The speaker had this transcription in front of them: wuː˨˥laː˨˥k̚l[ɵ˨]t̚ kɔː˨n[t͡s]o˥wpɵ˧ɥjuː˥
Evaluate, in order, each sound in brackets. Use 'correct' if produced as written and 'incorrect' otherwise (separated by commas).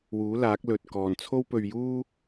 correct, incorrect